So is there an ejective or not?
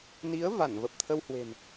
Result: no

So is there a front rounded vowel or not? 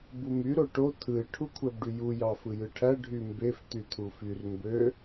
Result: yes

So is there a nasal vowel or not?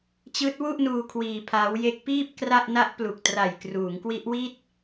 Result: no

